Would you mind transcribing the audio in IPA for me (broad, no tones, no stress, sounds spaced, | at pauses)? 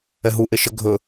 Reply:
ɛ ɦ u ʔ e ʃ ə ɡʱ ɵ